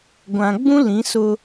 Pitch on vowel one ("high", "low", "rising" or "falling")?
low